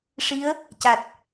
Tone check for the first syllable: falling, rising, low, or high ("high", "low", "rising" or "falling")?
rising